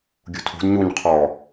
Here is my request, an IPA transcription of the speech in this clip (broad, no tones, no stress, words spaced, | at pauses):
ɡʲṳtʰṳd ɲuɲ qʰɔ